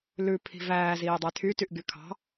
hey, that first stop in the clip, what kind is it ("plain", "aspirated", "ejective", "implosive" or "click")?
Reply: aspirated